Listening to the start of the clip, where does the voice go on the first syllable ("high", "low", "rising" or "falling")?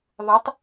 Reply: rising